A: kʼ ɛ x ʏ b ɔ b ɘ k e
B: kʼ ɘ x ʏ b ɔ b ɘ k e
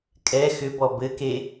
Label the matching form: A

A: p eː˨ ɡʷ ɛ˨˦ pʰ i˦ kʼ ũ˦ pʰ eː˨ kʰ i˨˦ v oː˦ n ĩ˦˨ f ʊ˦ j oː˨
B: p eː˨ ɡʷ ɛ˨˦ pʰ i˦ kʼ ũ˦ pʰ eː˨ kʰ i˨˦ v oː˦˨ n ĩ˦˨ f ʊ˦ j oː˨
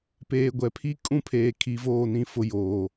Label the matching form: B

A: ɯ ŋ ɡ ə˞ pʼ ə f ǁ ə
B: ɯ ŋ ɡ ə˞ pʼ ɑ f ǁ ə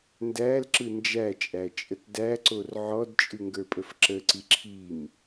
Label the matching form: A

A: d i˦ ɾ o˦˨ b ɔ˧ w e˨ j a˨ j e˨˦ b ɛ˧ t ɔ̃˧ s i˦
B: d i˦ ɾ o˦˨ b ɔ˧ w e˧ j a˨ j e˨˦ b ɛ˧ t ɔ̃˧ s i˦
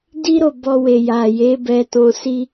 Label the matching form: A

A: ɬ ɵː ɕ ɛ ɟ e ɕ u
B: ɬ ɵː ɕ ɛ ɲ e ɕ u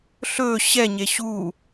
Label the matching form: B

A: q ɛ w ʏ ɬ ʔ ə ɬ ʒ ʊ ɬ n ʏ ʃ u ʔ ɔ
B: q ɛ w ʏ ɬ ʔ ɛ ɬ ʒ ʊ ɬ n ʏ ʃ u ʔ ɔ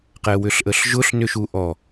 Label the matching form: A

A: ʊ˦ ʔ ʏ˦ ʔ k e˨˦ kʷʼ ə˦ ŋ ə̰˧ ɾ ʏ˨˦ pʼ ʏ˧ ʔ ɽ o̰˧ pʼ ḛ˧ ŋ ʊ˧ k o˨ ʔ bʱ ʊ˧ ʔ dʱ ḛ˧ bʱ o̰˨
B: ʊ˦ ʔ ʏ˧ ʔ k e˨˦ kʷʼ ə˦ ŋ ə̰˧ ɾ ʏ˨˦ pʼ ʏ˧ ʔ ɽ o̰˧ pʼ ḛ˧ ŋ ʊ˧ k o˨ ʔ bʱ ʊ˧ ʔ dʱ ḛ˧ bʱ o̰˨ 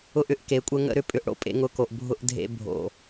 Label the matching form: A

